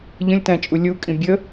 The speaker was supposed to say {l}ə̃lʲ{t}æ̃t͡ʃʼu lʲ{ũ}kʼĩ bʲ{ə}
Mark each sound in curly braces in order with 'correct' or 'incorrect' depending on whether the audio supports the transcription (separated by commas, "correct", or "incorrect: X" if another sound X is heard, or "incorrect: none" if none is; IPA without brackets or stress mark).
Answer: incorrect: ʎ, correct, incorrect: u, correct